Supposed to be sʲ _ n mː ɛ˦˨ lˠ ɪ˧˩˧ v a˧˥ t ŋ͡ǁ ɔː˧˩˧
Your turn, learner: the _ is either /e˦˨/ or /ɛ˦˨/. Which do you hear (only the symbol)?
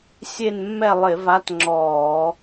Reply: e˦˨